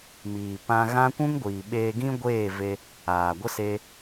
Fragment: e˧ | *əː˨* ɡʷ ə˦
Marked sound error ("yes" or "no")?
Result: yes